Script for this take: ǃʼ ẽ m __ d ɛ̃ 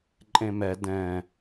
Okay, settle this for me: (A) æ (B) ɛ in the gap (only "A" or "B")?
B